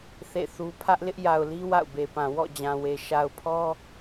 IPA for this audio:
θ ḛ˦˨ θ u˦ pʰ ä˦ ʔ l ɪ˦ ʔ j a˨ ʊ̯ l i˦ w a̰˦˨ ʊ̯ b e˨ p ã˨ w ɔ̰˦˨ d͡ʑ ã˨ w e˨ ʃ a˨ ʊ̯ pʰ ɔ˦

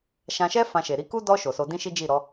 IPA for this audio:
ʃ ã˧ ʃ ɛ˦ f ã˧ ʃ e˨ ɾ i˨˦ k u˦ d ɔ˧ ʃ o˨ s o˧ d ĩ˦ ʃ i˦ d͡ʒ i˦˨ ɾ ɔ˨˦

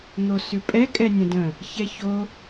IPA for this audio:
n̪ o s ʉ pʼ ɛ kʼ ɛ nʲ ə̃ d ə̃ | ç ɛ ç o

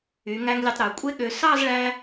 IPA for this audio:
y˩˧ ŋ æ˧ ŋ lʲ e˧ tˤ ɾ ø˩˧ kʷʼ e˥ ɠ ø˧ s ɑ˥˧ z ɭ æ˧

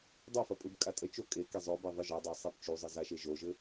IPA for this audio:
dˤ o f ɐ pʼ ɯ b kʼ a tʼ ə t͡ʃ o kʼ e k e zˤ o b e ðˤ ɯ ʒ ɤ dˤ e sˤ e b t͡ʃ u zˤ ɯ z a ʃ e ʒ o ʒ ɘ

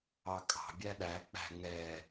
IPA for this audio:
ɑ kʼ ɑ̤ bʲ æ ɗ æ k͡p æ̤ ŋ ɛ

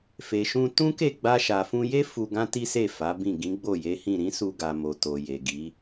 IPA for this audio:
f e˨ ʃ ũ˧ t ũ˦ k e˦˨ ɡ͡b a˧ ʃ a˨ f ũ˧ j e˦ f u˧ ɡ ã˦ t i˦ s e˦˨ f a˨˦ b ĩ˦˨ ɡ ĩ˨˦ ɡ͡b o˦˨ j e˨˦ h ĩ˦˨ ɾ ĩ˨˦ s u˧ ɡ a˨ m o˨ t o˨ j e˨ ɡ i˨˦

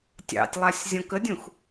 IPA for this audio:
tʲ ɑ̰ tʲ lˠ a sʲ zʲ ɔ̃ k ə dʲ ũ x

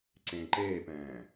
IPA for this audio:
ǀ ẽː ǃ eː p ɛ̃ː

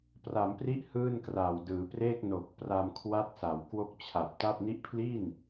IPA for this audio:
p r a˩˦ m p r i˦˥ ʔ h ɯː˥˩ n k r a˨˩ w d ɯː˩˦ p r eː˥˩ k̚ n o˨˩ k̚ p r a˧ m kʰ w a˦˥ t̚ s a˩˦ w k w o˦˥ k̚ t͡ɕʰ a˨˩ p̚ t a˥˩ p̚ n i˦˥ ʔ pʰ l i˥˩ n

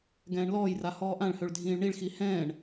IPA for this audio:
ɡ ɛ̃ː ɳ l ɔː j r a h ɔː ʔ ã ɭ h ø ɭ dʱ ĩː ɭ ɳ i ɭ x i h ɛ̃ː ɳ

